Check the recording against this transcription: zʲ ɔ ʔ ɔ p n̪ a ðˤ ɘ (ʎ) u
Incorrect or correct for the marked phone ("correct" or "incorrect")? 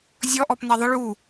incorrect